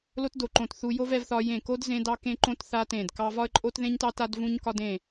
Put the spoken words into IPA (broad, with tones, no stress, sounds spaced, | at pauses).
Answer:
l o˥ t d o˦˨ ǃ õ˦˨ t θ u˥ j o˥ v ɛ˥ v θ ɒ˥ j ẽ˦˨ k o˥ d z ẽ˥ d ɑ˥ k ẽ˥ ǃ õ˥ t θ a˥ t ẽ˦˨ d k ɑ˥ v ɒ˥ ə̯ ǃʼ o˥ t ð ẽ˥ ɲ t ɑ˥ t a˥ d v ũ˥ ɲ k ɒ˥ d ẽ˦˨